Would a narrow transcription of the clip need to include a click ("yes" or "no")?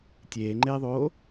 yes